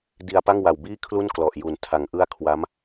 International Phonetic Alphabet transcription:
d i˧ a̯ p a˥˩ ŋ w a˨˩ w b iː˥˩ kʰ l u˥˩ n k l ɔ˨˩ ʔ j u˩˦ n tʰ a˩˦ ŋ ʔ ɯ˥˩ a̯ kʰ w a˦˥ m

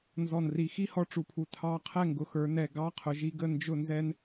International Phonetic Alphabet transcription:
n z ɔ˨˩ n r i˨˩ x i˥˨ h ɔ˧ ʈ͡ʂ u˩˧ pʰ u˨˩ tʰ ɑ˧˥˧ qʰ ɛ˥˨ ŋ ɡ ʊ˩˧ x ə˞˩˧ n ɛ˨˩ ɡ ɑ˧˥˧ qʰ ʊ˩˧ ʒ i˧ ɡ ə˥˨ n d͡ʒ ʊ˥˨ n z ɛ˥ n

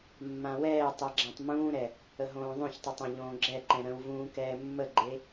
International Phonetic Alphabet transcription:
mː ã w ɛː tˤ ɛ ɡ͡ǁ ã tˤ m ũː ɾ ɛ | ə ɦ õː ðˤ õ ç tˤ o tˤ ã ʎ õː ɡ͡ǁ ɛ ǃ ɛ̃ ɾ ə̃ w v ũː k ɛː mː ə ɡ͡ǃ e

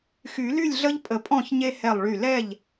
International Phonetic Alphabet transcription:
x y˨˩˦ l y˥˩ lʲ ɮ ə˦ ʎ pʼ ə˧˩ pʼ ɔ̃˥˩ ç ɲ e˦ h ɛ˧˩ lˠ ɭ y˧˩ l ɛ˥˩ ʎ

